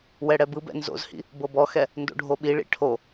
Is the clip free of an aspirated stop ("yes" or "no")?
no